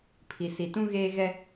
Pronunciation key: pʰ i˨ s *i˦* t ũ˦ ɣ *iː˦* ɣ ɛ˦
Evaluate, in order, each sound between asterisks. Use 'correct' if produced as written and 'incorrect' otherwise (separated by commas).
incorrect, incorrect